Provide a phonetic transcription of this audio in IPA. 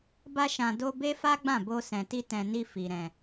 b a˧ ʃ ã˨ d o˧ b e˦ f a˦ ɡ͡b ã˦˨ b o˧ s ɛ̃˨ t i˧ t ɛ̃˨ n i˧ f i˨ ɾ ɛ̃˨

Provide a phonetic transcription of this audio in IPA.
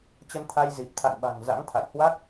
t͡ɕ ə˧ n t̪ʰ a˧ j z i˨˩ p̚ t̪ʰ a̰˧˨ n ɓ a̤˨˩ ŋ z a̰˧˥ ŋ t̪ʰ a̰˧˨ j h w a˦˥ k̚

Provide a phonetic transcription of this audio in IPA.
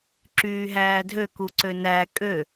ǁ yː ɦ æː dʱ ø k u ǀ ø n æ kʼ ø

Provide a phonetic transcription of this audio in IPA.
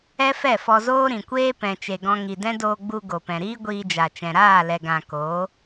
ɛ˦ f ɛ˦˨ f ɔ˧ z oː˦ ɾ ĩ˨ kʷ eː˦ p ɛ̃˨ t͡ʃ e˨ ɡ ɔ̃˧ ŋ i˨ d ɛ̃˦ d oː˧ ɡ͡b u˧ ɡ o˨ p ɛ̃˨ ɾ iː˦ ɡʷ iː˧ d͡ʒ a˨ t͡ʃ ɛ̃˨ ɾ aː˦˨ l ɛ˨ ɡ ã˨ k oː˨˦

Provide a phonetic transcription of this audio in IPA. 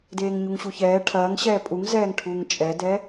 d eː ŋ ɲ u ŋ ɕ u ç ɛː ʈʰ ɐː ŋ ɕ ɛː pʼ u ŋ z ɛː ŋ ʈʰ uː ŋ t͡ʃʼ ɛ d ɛ

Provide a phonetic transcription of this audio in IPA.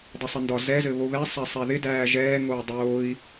dˤ ə sˤ ə n d ɒ z ɛ z ɘ β o β ɛ sˤ æ sˤ æ ð ɪ d æː ʒ ɛː ŋ oː dˤ oː i̯

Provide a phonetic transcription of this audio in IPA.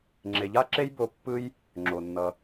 ŋ͡ǁ e˨ ʎ a˦ ǁ e˦ j b o˧ pː ɯ˦ j | ŋ͡ǁ o˨ nː ʌ˧

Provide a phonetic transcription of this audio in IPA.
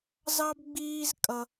z ɑ˥ b ɡ͡b iː˥ z kʼ ʌ˥

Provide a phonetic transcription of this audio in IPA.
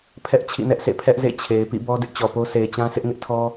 pʰ ɛ˦ ʔ t͡ɕʰ ḭ˦˨ n ɛ˦ ʔ s ḛ˦˨ pʰ ɛ˦ ʔ z ḛ˦˨ t͡ɕʰ e˨ ɪ̯ p ḭ˦˨ b ɔ˦ d ɪ˦ ʔ t͡ɕ ɔ˨ p o˦ s e˨ ɪ̯ t͡ɕ ã˦ sʰ ɪ˦ ʔ ŋ ɪ˦ ʔ tʰ ɔ˦

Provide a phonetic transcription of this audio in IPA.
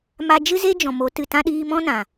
m a˧ d͡ʒ ɨ˦ z e˦ d͡ʒ ɔ̃˨ m o˨˦ t ɨ˨ t ã˦ ɗ iː˧ m ɔ̃˦ n ã˨

